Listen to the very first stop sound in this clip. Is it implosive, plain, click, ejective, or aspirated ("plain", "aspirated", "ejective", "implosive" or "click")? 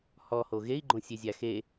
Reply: click